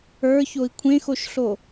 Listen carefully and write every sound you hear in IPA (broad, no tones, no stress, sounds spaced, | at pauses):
ə˞ ç o i̯ kʷʰ ẽ x o ʃ ɬ o